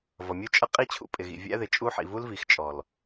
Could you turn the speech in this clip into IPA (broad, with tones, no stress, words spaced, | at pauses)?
vʌ˨mʲu˦ t͡ʃʼʌ˦ qʼi˦t͡ɕʰṵ˦ pʼɪ˨ɣḭ˨ vʲæ̰˦ðɪ˨t͡ʃʼu˦ħḭ˨ vu˦lvi˨x t͡ʃʼɔ˨l